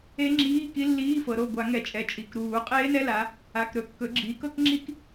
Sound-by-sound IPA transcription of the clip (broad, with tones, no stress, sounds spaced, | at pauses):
e˦˥ ŋ͡ǁ iː˧˥˧ k i˦˥ lː iː˧˥˧ f ɤ˩˧ ɾ o˩˧˩ ɡʷ a˧˩˧ ŋ ɛ˩˧ t͡ʃʼ ɛ˩˧˩ t͡ʃʼ i˩˧˩ k ɾ uː˧˩˧ qʼ eː˦˥ n ɛ˧˥˧ l a˩˧ | a˩˧˩ k ɾ ɵ˧˩˧ kː ɵ˩˧ ɡ͡ǁ iː˩˧ k ɤ˦˥ k ŋ͡ǁ i˦˥ k